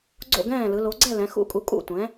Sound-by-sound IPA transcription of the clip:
ɡ͡ǀ o̰˥˨ ɡ ɛ̃ː˥˨ l ɯ˩˧ l o˩˧ ɡ͡ǀ ɛ˥˨ l ɛ̃˩˧ x ṵ˦˥ kʼ u˩˥ kʼ ṵ˥˨ tʷ ɛ̃˩˥

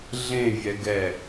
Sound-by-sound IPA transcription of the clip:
ɮ ẽ vʲ ɛ ɡ ɛ

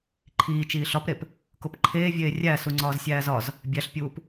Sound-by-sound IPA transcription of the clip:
ǃʰ iː t͡ʃ iː ɬ ɒ p ɾ e p | k o p ǃʰ eː vʲ eː rʲ æ s u ŋ͡ǀ ɒː z sʲ æː z ɒ z | bʲ æ ɬ pʲ uː p

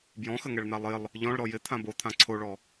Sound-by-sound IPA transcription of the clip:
b j ɔ̃ x ə ŋ ɛ ɭ n̪ a lˠ ɪ lˠ | ʎ ɔ̃ ɭ ɾ ɔ j ɪ t̪ʰ ã b o t̪ʰ ã ǀʰ o ɭ ɔ

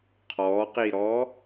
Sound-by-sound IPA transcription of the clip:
qʰ ɔ q i ɾ ɔ

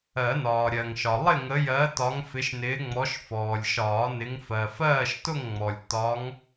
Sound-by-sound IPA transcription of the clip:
ɜ˨˩˦ n ɒː˩ ɾʲ ɜ˩ ŋ ʃ ɒ˩ lˠ ɪ˥˨ ŋ ə˨˦ j ɜ˨˦ t ɒ˨˦ ŋ f ɪ˨˦ ʃ n ɪː˨˦ ŋ͡m ɔ˨˦ ʃ f ɔː˩ lʲ ʃ ɒː˨˩˦ n ɪ˨˦ ŋ f ɜ˩ f ɜː˥˨ ʃ t ʊ˥˨ ŋ ŋ͡m ɔ˩ lʲ t ɒ˨˦ ŋ

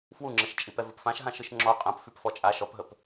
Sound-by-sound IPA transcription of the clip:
f w u ŋ͡ǁ ə ʃ t͡ʃʼ i p ɛ v ə p f ã ʃ ɦ ã ʃ ɯ ʃ ŋ͡ǁ ɔ qʼ ɐ̃ p f y p f ɔ t͡ʃʼ a ʃ ɔ p ɦ ə p

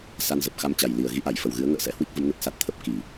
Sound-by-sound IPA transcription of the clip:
s a˧ n z ə˨˩ p̚ x a˧ m t͡ɕ a˨˩ j l i˨˩ ə̯ ɣ i˨˦ ʔ a˧˩ j f ə˨˩ w ɣ ɨ˨˦ ə̯ ŋ ə̰ː˧˨ s ɛ̰˧˨ h w i˦˥ k̚ v ə˨˦ m n ə˨˩ t̚ s a˦˥ t̚ t̪ʰ ə˦˥ p̚ k i˧˩˨

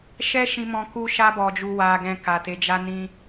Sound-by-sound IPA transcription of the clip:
ʃ ɛ˦ ʃ ĩ˧ m ɔ̃˧ k u˧ ʃ a˧ b ɔ˨ d͡ʒ u˨ w a˨ ɡ ɛ̃˨ k a˨ t e˨˦ d͡ʒ a˦ n ĩ˦

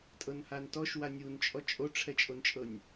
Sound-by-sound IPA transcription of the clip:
tʼ ɤ n h a n t ɔ ʃ w a nʲ u n t͡ʃʼ ɔ t͡ʃʼ o ʈ͡ʂʰ ɛ t͡ʃʼ o n t͡ʃʼ ɤ nʲ

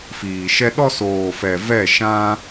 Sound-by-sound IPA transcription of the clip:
f iː˨ ʃ ɛ˦ ɗ ɔ˦ s oː˨ f ɛ˨ v ɛ˦˨ ʃ ã˦

